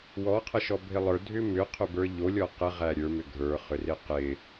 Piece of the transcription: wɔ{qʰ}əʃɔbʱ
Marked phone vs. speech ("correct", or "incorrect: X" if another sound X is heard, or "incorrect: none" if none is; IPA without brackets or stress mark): correct